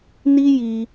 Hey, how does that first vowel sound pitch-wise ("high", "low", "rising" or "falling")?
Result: high